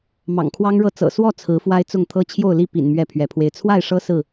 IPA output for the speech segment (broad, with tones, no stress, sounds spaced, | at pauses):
m ɑ̰˨˩ ŋ kʰ w ɑ˦ ŋ ɻ ɤ˦ t͡s ɤ̰˨˩ s w ɔ˥˨ t͡sʰ ɹ̩˨˦ f w a˦ ɪ̯ t͡s ʊ˥˨ ŋ t̪ʰ ɤ˦ t͡ɕʰ j o˥˨ ʊ̯ l i˥˨ p ḭ˨˩ n m ɥ ɛ˥˨ pʰ ɥ ɛ˨˦ pʰ w e˧ ɪ̯ t͡sʰ w a˥˨ ɪ̯ ʂ ɤ˦ s ɹ̩˥˨